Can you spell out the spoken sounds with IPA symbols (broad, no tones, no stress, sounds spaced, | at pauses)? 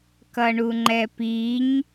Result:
k ʌ ɳ u ŋ͡ǃ ɛ p i ɲ